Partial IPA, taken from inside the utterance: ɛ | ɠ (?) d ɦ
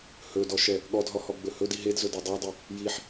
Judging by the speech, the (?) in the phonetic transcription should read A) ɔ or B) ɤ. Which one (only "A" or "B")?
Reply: A